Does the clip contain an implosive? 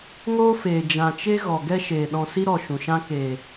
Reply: yes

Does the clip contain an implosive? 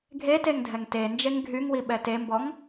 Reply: yes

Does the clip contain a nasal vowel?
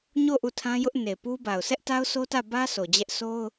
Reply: yes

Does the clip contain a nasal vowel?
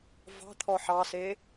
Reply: no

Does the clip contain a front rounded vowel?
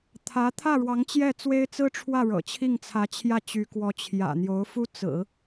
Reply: yes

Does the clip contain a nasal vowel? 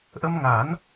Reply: no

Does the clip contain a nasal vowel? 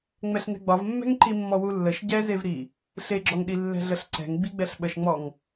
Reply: no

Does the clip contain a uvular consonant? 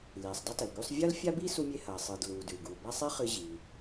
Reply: yes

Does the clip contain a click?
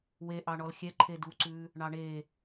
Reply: yes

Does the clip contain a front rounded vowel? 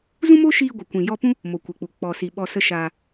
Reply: no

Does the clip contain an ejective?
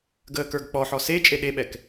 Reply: yes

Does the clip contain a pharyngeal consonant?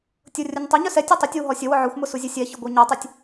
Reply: yes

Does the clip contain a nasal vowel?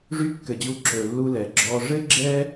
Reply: no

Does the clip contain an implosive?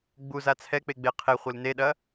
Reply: yes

